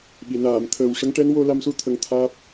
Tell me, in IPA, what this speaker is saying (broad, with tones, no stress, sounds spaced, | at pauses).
ɓ i˨˩˨ n aː˨˩˨ m t̪ʰ əː˨˩ w ʂ ə˧˥ ŋ ʈ ɛ˧˥ n w o˧ l a˧ m s u˧˥ t̪ʰ ə˧ ŋ t̪ʰ aː˦˥ p̚